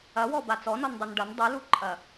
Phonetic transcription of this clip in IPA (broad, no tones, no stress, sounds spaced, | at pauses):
ɐ w ɔ b a t͡s ɔ n ɔ n dˤ o n ɖ ɐ n dˤ ɨ l u ǃʼ ɐ